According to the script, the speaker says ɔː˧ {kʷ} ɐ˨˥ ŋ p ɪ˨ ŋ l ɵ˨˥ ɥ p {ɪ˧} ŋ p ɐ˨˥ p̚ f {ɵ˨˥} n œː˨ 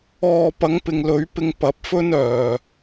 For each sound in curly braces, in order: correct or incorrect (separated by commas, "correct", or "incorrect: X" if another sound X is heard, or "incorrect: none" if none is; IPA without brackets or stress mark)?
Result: incorrect: p, correct, incorrect: ɵ˥